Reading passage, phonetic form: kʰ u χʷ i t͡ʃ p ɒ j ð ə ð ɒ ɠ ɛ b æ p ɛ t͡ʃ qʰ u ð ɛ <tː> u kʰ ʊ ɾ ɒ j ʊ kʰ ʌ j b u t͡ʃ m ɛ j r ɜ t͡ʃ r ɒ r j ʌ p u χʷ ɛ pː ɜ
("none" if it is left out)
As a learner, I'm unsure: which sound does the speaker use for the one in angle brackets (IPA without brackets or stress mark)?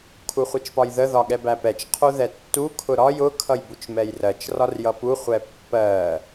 tː